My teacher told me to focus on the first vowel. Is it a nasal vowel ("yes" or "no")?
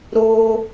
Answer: no